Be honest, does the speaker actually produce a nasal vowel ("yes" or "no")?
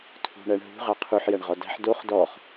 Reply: no